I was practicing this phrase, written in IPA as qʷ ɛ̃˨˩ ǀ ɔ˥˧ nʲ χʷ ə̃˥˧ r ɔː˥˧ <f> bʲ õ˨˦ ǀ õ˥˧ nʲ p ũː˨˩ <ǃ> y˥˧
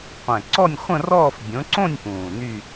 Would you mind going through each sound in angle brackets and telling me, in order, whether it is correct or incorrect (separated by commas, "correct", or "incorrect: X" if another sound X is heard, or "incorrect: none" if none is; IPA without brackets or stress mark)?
correct, incorrect: n